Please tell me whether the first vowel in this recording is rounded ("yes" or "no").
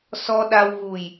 yes